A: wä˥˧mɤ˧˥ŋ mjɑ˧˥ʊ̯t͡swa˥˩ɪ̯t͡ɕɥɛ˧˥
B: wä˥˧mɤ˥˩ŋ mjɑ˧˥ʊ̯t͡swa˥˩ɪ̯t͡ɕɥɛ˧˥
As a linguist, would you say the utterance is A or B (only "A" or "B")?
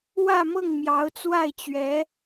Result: B